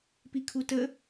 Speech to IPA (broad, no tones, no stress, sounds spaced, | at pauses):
p i kʰ u t ə